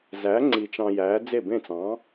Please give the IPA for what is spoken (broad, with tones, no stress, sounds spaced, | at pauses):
z æ˨˥ ŋ͡ǀ i˧ t͡ʃ ɑ̃˧ j æː˨˥ d͡z e˥˩ b ẽ˥˩ t͡s ɑ̃ː˨˥